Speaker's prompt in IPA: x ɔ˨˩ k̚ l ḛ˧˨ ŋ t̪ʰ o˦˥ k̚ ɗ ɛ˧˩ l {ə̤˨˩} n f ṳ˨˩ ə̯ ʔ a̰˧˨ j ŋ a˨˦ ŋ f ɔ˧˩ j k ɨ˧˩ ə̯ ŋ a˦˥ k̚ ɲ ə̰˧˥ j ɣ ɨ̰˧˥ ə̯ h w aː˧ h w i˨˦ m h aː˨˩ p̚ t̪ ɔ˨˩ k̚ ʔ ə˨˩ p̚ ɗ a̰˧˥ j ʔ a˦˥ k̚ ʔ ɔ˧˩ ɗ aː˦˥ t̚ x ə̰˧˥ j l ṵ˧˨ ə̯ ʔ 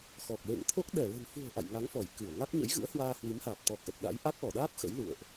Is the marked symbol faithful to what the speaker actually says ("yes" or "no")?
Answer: yes